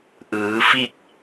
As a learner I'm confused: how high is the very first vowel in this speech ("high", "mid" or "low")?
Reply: high